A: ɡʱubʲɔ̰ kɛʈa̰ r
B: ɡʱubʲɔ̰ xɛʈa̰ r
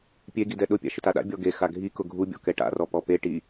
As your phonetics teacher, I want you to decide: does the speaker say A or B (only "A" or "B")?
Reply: A